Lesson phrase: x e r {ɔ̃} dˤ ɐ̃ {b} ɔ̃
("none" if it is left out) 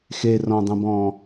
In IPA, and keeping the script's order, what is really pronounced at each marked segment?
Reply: ɔ̃, b

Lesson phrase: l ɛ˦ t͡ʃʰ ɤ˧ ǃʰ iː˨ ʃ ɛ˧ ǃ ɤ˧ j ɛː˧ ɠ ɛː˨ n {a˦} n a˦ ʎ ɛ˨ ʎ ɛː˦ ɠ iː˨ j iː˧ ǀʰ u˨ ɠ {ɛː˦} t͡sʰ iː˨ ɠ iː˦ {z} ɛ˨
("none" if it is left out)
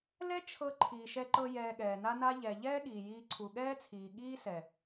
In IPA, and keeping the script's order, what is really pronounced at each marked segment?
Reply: a˦, ɛː˦, s

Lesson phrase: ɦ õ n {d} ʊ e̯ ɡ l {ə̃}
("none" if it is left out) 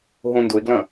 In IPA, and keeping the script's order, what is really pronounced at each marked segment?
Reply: d, ɐ̃

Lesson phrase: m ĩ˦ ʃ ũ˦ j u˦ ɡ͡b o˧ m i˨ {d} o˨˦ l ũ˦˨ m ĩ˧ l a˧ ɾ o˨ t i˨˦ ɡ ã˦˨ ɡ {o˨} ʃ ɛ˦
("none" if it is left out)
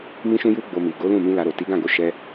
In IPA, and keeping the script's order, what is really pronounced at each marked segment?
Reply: ɡ, o˧

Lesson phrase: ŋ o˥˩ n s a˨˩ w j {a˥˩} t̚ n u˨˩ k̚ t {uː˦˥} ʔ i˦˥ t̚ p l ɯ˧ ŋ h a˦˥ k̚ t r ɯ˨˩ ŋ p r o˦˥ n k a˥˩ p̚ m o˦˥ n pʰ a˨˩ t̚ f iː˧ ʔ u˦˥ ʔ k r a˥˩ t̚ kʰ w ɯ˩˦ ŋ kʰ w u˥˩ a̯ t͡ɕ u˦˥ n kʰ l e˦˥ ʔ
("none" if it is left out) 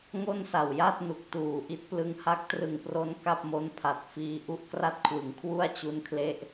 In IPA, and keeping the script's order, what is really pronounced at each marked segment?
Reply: a˥˩, uː˨˩

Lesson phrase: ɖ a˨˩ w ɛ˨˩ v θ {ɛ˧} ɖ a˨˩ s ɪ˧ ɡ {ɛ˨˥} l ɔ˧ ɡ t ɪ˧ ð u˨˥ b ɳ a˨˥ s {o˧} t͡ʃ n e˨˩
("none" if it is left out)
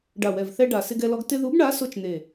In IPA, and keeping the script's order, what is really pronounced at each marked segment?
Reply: ɛ˧, ɛ˧, o˧

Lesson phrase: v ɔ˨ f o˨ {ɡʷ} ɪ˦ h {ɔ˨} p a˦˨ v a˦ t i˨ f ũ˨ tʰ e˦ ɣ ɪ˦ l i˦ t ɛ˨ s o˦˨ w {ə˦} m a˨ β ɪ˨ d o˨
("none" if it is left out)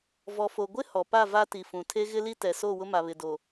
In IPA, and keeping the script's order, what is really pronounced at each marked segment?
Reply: ɡʷ, ɔ˨, ʊ˦

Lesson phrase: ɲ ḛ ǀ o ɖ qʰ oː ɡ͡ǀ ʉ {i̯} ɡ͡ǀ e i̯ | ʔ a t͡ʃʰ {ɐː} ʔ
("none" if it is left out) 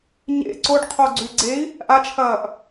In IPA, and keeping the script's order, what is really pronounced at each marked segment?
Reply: i̯, ɐː

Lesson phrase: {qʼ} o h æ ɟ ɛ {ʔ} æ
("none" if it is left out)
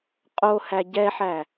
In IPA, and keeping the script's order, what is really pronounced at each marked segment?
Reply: qʼ, ħ

